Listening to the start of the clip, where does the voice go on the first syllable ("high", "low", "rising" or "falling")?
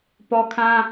high